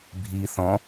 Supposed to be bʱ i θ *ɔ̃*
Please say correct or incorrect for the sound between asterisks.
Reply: correct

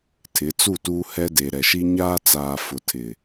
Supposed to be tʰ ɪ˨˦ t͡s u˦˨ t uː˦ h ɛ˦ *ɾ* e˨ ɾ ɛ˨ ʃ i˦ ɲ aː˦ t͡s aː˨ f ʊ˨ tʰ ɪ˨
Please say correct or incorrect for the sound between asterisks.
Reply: incorrect: d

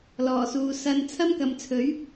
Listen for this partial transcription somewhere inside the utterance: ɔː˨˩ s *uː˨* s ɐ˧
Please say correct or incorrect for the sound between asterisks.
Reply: correct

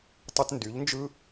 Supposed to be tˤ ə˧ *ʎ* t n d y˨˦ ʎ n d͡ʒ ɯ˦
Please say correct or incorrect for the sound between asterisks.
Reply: incorrect: none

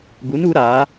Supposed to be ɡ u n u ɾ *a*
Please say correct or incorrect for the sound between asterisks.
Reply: correct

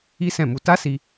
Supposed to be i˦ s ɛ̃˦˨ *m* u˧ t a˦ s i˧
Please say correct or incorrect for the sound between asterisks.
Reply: correct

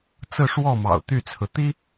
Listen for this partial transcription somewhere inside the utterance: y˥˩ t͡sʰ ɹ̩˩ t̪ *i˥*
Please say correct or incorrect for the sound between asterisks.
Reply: correct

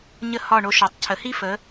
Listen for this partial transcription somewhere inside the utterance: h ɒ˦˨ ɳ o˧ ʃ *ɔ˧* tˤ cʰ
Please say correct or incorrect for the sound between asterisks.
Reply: incorrect: ɔ˨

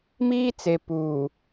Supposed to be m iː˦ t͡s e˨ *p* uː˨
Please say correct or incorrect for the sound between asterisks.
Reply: correct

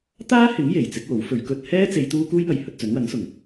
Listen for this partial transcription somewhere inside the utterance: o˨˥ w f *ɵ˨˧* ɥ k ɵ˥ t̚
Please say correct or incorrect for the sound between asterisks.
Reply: correct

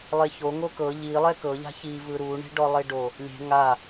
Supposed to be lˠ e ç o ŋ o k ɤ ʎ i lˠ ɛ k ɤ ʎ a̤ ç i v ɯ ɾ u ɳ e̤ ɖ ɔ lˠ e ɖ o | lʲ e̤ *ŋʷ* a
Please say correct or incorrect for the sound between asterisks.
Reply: incorrect: ŋ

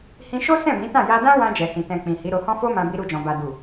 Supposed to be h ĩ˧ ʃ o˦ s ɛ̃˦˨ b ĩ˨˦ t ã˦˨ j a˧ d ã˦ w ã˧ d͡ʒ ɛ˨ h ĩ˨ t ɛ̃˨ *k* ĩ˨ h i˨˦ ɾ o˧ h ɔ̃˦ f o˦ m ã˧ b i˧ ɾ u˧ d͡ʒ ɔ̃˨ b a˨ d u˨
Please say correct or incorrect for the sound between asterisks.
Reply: incorrect: k͡p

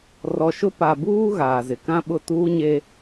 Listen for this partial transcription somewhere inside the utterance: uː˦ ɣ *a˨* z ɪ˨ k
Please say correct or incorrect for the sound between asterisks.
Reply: incorrect: aː˨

